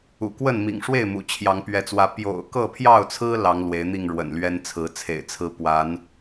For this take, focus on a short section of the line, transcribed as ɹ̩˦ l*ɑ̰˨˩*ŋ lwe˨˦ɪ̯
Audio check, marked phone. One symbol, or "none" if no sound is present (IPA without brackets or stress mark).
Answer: ɑ˨˦